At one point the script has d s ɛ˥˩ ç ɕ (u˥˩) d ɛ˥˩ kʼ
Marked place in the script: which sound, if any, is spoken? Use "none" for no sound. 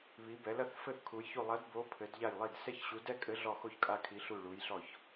u˨˥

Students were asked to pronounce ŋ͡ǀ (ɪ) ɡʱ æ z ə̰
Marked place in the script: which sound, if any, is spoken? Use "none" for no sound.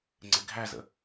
ɪ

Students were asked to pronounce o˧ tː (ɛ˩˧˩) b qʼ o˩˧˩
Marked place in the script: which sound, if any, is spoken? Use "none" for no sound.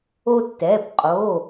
ɛ˩˧˩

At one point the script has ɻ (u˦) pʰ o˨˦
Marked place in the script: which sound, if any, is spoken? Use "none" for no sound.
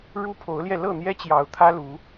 u˦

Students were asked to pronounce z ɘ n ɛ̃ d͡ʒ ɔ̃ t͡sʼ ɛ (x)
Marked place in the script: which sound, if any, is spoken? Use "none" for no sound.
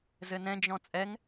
ŋ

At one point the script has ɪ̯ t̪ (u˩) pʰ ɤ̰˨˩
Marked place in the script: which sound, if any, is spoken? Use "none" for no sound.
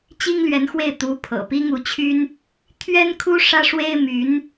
u˧˥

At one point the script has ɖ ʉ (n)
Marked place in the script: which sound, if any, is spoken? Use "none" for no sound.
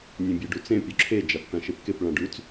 t͡s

